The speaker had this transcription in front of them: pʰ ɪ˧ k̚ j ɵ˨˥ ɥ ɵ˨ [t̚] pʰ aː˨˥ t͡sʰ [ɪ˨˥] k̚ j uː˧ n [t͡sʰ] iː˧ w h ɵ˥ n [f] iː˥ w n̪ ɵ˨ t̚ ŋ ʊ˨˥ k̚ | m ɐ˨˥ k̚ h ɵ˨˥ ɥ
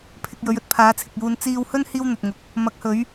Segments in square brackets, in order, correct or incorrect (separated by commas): correct, incorrect, incorrect, incorrect